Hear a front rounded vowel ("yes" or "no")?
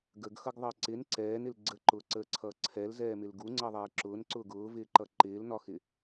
no